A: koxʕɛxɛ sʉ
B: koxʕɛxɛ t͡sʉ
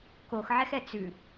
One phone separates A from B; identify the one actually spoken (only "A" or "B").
B